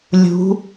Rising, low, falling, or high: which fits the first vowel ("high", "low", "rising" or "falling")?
rising